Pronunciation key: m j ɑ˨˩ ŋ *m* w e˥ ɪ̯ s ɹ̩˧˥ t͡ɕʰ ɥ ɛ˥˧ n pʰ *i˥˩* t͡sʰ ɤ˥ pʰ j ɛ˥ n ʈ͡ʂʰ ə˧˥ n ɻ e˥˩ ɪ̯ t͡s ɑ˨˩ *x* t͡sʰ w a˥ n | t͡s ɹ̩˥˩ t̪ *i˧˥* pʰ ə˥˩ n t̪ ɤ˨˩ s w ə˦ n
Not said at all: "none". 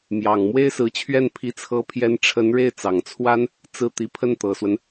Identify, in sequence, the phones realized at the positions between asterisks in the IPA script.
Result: m, i˥˩, ŋ, i˧˥

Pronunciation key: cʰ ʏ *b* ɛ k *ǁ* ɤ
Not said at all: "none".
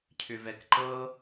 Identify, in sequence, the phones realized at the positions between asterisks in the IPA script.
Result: v, ǃ

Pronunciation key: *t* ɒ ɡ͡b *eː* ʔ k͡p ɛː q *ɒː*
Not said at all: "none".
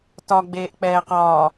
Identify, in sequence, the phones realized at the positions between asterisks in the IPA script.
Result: t, eː, ɒː

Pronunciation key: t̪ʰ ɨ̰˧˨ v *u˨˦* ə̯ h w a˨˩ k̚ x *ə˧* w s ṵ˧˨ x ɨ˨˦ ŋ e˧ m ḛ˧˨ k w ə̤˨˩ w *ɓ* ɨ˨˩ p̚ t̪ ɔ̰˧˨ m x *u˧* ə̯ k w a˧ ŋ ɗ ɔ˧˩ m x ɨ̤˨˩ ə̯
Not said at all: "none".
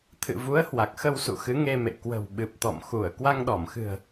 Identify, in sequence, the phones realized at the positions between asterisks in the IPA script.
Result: u˨˦, ə˧, ɓ, u˧˩

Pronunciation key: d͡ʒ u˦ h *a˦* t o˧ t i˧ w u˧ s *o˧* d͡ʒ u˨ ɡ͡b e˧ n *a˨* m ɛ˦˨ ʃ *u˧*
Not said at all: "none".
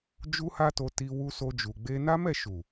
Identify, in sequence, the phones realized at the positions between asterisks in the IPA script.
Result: a˦, o˧, a˦, u˨

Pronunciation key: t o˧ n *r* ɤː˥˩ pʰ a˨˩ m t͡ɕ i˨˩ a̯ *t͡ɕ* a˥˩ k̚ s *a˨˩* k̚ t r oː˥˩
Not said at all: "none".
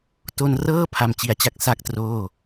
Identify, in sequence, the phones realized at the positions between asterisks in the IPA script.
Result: r, t͡ɕ, a˥˩

